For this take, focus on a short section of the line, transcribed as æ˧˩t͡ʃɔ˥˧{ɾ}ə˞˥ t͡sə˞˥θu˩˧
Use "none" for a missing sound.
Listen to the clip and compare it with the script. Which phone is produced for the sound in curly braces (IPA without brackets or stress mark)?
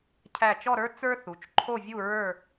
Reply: ɾ